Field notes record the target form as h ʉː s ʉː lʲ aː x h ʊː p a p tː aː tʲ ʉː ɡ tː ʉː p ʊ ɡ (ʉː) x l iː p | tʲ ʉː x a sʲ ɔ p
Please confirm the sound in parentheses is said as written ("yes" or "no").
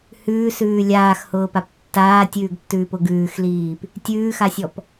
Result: yes